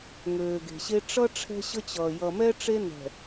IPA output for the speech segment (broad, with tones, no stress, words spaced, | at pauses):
ŋøː˨ɡe̤˨ɕe˦ ʈ͡ʂʌ˦ ʈ͡ʂʰɛ̤˦ɕə˦t͡ɕʌː˨ jʌ˨mɛ˦ ʈ͡ʂe˦nɛ̤˨